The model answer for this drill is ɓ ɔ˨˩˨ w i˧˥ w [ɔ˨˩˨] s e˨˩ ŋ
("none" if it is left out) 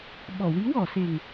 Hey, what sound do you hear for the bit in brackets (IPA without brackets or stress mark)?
ɔ˨˩˨